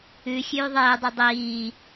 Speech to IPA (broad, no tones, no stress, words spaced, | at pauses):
ʉ xʲʉːðˤeːdˤi dˤiː